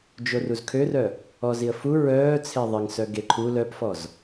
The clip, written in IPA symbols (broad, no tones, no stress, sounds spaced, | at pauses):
d͡ʒ o r u z kʰ ø r œ | ɔ z i ə̯ f u ɹ œː t͡sʰ e ðˤ ɪ ŋ s œ ɡ e ǃʰ u l œ p f ɔ z